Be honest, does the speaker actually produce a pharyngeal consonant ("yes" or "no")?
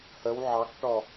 yes